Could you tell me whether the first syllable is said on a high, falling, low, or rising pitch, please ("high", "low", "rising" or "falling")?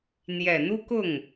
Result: low